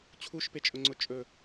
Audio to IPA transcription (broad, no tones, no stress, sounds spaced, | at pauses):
t͡ɕʰ u ʃ p e t͡ʃʼ ʊ ŋ͡ǀ ʊ t͡ʃʼ ɵ